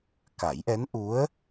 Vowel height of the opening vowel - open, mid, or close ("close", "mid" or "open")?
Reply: open